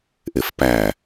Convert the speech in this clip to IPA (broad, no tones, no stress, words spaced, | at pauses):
ʔefpæ